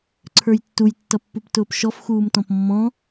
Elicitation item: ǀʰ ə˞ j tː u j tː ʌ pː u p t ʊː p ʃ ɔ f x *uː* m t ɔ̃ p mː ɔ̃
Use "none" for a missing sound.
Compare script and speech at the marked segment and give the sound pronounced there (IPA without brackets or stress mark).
uː